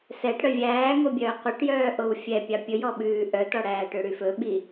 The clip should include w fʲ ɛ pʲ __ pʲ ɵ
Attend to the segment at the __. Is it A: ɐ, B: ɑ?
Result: B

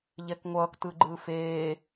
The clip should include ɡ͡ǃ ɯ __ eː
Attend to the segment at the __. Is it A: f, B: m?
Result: A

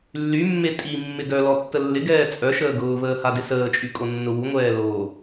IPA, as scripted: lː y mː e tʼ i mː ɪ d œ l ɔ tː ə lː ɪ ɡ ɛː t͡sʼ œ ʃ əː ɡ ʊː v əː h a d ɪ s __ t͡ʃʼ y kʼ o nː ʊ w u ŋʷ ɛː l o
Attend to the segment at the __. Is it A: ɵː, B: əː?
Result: B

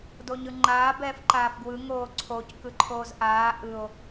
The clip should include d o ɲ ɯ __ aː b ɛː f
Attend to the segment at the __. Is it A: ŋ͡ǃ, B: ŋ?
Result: A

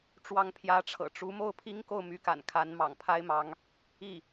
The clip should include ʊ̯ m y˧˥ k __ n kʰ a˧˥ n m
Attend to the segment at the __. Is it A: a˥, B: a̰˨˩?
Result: B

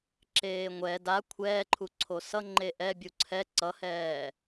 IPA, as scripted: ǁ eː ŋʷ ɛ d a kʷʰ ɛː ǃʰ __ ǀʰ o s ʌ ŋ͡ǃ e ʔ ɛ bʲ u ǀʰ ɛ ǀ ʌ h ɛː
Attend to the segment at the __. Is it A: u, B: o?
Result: A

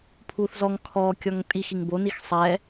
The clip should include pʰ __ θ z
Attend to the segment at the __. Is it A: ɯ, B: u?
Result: B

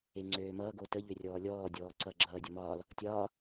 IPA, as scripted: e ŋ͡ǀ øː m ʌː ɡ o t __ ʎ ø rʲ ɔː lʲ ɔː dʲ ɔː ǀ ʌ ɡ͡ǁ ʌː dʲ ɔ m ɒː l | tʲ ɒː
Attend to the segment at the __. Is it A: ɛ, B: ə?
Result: B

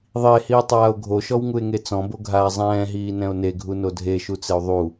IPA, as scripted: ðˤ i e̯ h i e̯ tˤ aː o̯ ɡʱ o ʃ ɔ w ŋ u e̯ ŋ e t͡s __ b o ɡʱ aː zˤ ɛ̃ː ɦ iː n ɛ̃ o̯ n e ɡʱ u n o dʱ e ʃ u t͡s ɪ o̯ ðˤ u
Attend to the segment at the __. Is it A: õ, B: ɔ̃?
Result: B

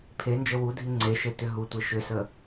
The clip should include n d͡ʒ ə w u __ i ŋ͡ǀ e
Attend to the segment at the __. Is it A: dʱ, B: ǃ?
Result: A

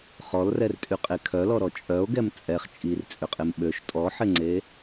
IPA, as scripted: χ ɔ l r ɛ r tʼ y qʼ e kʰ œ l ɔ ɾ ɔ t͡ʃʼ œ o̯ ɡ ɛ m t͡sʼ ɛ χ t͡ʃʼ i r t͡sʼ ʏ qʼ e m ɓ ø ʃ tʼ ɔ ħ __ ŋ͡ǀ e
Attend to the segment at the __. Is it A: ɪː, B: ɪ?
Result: B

